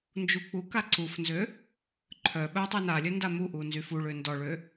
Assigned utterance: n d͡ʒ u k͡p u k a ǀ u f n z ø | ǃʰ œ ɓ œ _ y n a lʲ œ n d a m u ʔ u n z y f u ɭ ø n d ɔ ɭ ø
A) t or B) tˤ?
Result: B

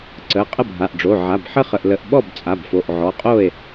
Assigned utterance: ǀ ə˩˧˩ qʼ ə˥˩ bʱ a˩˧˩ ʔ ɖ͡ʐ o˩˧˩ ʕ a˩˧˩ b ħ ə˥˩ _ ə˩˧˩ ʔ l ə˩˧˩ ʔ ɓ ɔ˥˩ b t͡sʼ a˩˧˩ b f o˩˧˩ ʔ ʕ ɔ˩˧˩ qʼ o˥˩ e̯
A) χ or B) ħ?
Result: A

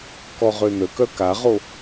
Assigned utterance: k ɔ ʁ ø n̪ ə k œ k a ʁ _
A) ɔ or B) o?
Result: B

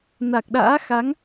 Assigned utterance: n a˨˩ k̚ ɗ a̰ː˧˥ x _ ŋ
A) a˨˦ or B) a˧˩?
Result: A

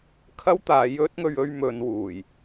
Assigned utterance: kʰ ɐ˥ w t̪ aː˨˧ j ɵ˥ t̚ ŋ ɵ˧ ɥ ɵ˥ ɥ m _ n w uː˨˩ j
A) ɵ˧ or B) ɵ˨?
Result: A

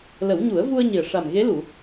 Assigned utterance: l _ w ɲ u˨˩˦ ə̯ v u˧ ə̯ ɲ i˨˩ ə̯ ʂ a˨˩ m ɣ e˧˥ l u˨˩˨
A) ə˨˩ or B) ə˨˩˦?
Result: B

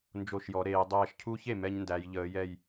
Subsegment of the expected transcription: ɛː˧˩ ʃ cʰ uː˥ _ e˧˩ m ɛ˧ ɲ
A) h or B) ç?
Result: B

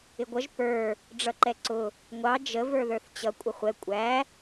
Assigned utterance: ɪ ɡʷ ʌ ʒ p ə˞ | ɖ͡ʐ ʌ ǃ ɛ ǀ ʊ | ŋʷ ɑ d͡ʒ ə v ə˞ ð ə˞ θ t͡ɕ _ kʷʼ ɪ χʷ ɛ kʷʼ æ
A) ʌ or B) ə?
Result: A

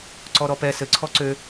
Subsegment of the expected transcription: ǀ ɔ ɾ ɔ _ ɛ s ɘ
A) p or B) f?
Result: A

